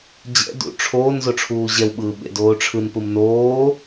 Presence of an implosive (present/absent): present